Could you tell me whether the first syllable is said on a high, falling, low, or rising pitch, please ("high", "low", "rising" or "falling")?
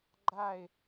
falling